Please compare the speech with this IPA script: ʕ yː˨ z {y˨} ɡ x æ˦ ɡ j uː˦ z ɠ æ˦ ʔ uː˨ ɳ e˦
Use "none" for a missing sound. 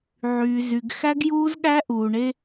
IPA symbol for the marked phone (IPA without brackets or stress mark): y˨